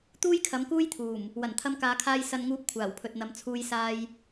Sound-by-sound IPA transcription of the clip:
t̪ uː˥ j kʰ ɐ˨˥ m k uː˥ j t̪ʰ uː˨˩ m | w ɐ˨˩ n t̪ʰ ɐ˧ m k aː˨˧ kʰ aː˧ j s ɐ˨ n ŋ uː˨˥ p̚ kʷʰ aː˨˩ w pʰ ɵ˨ t̚ n̪ ɐ˨˧ m t͡sʰ uː˧ j s aː˧ j

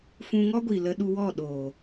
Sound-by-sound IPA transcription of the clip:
f ũ˧ ŋ ɔ˦ ɡʷ i˨ l ə˧ ɗ u˧ w ɔ˦˨ ɗ oː˨

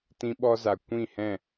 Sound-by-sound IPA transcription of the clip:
t ĩ˧ ɓ ɔ˧ z a˨ kʷ ĩ˦˨ h ɛ̃˦˨

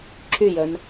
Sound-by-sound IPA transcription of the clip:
ǁ y j œ n

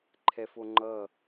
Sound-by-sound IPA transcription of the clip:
ǃʰ ɛ f o ŋ͡ǃ ʌ

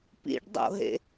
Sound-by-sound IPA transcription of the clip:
p ḭ ɖ dˤ o̰ ɦ ḛ

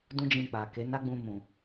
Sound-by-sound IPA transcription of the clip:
d ũ˦ d͡ʒ ĩ˧ k͡p a˨ k e˨˦ n a˦ ɡ͡b ũ˧ m ũ˨

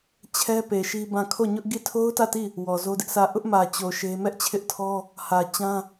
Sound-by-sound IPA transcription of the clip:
t͡ɕʰ ɛ˦ p e˨ ʃ i˦ b ã˦˨ kʰ o˦˨ ɲ ʊ˦ ʔ ɡ i˦˨ tʰ o˦ ʊ̯ t ä˦˨ t i˦˨ | w ɔ˨ z o˦ d ɪ˦ ʔ sʰ ä˦˨ ʔ ʊ˦ ʔ m ä˨ t͡ɕ o˨ ʃ e˦ m ɛ˦ ʔ t͡ɕʰ ɪ˦ ʔ tʰ ɔ˦ | h ä˨ t͡ɕ ã˦

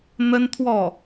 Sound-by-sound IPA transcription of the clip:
n̪ ə˥ n t̪ʰ w ɔ˥˩

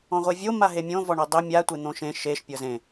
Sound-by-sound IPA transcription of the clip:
ɔ̃ ʁʷ e vʲ o m a ɦ e mʲ õ v ɔ ɳ ɤ dˤ e mʲ a tʷ e n̪ õ ʃ ẽ ʃ e ʃ pʲ ɤ z ẽ

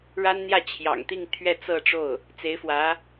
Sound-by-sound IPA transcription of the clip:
ɻ a˥ n n̪ j ä˥˩ t͡ɕʰ j ɑ̰˨˩ ŋ t̪ i˥˧ ŋ t̪ʰ ɥ ɛ˥˧ t͡s ɤ˥˧ ʈ͡ʂ o˥˩ ʊ̯ | t͡s e˧˥ ɪ̯ f w ä˧˥

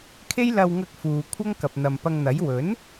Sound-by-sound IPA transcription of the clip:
kʰ e˥ j l ɐ˧ w ŋ ɐ˧ k̚ f uː˨ kʷʰ ɐ˥ ŋ k ɐ˨ p̚ n̪ ɐ˨ m p ɐ˧ ŋ n̪ ɐ˨˥ j w ɵ˨˥ n

